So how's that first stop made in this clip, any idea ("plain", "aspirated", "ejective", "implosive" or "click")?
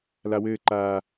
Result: click